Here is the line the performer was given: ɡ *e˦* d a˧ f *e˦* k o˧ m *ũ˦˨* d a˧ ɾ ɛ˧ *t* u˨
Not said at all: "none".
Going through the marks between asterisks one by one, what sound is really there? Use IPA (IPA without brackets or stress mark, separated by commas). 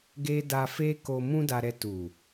e˦, e˦, ũ˦, t